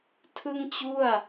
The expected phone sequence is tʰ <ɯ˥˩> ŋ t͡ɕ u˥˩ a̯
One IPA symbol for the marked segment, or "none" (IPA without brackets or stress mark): ɯ˥˩